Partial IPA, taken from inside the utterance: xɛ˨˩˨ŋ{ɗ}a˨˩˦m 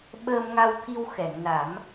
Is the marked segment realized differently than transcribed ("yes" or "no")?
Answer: yes